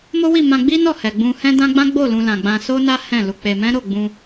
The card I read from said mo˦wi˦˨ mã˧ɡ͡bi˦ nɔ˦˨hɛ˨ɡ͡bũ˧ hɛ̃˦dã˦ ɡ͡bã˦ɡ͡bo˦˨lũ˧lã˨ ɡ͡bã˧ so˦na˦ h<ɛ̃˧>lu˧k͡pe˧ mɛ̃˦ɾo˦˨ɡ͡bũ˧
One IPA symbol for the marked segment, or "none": ɛ̃˦˨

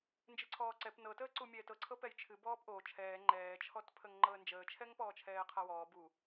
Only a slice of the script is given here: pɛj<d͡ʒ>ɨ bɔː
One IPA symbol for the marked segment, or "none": t͡ʃʰ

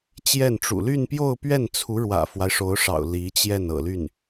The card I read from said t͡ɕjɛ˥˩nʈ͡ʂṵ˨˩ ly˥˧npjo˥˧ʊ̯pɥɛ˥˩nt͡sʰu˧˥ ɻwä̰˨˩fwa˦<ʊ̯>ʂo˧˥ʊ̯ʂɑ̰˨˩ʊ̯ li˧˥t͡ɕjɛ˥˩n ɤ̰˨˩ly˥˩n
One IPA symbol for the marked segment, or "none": ɪ̯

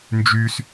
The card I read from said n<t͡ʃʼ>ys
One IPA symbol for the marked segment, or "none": d͡ʒ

